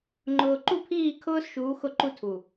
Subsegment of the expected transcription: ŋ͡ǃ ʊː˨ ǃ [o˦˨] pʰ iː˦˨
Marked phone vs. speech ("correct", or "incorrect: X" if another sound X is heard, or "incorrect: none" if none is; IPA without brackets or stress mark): incorrect: u˦˨